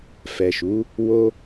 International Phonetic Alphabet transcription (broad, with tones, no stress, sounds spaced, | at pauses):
f ɛ˨ ʃ u˨˦ | w o˦